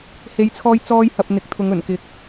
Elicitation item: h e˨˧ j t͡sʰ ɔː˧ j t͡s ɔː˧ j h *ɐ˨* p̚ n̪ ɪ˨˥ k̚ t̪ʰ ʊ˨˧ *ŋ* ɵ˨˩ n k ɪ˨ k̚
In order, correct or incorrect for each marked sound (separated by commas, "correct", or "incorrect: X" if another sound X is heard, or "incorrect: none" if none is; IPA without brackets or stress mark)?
correct, correct